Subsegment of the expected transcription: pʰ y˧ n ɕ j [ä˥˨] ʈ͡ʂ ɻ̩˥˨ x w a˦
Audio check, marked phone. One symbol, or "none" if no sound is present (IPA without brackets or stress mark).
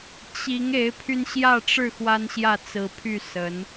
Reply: ä˥˨